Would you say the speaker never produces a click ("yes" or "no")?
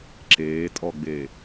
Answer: no